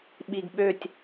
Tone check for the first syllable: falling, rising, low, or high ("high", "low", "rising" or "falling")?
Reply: low